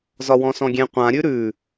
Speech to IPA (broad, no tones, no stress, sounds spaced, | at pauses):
z ɒ w ɔ̃ s ɔ̃ ɡʲ ẽ qʷ ã ɾʲ ʉ ɾ ʉ